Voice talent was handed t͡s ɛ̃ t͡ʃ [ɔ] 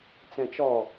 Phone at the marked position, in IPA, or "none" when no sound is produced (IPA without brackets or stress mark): ɔ